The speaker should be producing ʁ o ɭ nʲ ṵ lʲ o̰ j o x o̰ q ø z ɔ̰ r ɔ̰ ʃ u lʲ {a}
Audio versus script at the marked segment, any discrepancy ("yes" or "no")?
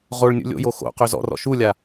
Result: no